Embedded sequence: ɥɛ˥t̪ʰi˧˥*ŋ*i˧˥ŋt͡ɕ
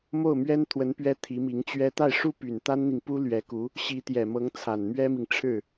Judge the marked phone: incorrect: m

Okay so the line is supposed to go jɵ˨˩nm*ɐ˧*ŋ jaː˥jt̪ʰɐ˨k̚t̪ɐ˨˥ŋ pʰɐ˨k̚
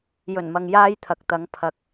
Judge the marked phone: incorrect: ɐ˨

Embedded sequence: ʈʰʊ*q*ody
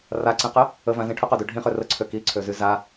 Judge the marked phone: correct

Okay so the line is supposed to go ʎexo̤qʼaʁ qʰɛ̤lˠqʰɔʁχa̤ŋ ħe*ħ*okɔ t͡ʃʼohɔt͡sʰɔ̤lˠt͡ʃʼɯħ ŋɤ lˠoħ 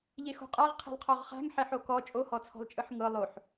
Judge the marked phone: correct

